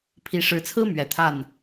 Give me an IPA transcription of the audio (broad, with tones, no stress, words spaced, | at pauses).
pʰi˨˦ ʂɻ̩˨˦t͡sʰɹ̩˦ mɥɛ˨˩t̪ʰa˥˨n